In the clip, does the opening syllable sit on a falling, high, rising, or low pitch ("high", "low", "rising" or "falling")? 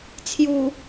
low